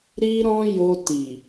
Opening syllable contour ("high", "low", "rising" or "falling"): high